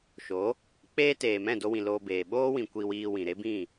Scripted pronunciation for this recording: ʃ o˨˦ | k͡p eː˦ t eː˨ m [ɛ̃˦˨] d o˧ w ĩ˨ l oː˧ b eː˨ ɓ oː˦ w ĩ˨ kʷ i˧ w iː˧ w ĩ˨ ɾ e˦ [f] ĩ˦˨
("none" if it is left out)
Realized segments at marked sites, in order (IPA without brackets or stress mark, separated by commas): ɛ̃˦˨, b